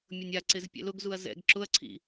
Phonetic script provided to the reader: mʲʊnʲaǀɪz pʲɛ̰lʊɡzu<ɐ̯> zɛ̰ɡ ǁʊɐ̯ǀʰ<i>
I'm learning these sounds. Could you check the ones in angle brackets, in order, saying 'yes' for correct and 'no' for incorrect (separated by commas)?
yes, no